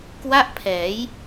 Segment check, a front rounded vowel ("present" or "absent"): absent